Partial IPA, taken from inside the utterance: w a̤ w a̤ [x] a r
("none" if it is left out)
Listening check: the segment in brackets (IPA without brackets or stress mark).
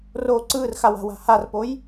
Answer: h